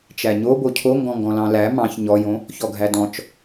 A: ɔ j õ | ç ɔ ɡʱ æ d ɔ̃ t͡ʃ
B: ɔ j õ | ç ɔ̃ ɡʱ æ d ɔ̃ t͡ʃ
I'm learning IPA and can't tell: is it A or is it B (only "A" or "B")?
A